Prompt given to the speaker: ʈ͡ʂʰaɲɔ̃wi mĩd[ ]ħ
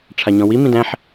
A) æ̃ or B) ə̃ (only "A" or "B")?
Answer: A